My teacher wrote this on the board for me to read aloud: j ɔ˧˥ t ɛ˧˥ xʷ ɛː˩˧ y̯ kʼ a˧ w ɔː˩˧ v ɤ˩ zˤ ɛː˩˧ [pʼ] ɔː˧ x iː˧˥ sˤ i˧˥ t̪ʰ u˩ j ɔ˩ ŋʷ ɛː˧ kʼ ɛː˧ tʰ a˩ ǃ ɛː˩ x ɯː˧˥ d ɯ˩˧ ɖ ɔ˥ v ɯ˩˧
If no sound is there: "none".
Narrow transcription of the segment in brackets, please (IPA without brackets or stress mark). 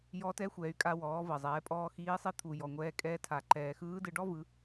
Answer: pʼ